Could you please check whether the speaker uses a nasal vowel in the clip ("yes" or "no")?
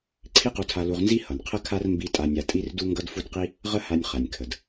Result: no